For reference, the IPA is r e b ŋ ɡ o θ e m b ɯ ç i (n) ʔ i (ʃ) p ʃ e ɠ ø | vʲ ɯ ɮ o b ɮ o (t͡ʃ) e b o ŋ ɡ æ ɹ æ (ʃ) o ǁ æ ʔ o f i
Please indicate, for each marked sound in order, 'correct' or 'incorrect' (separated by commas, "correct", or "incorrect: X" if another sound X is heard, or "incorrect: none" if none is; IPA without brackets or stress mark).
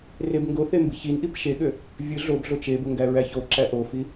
correct, incorrect: none, correct, incorrect: ç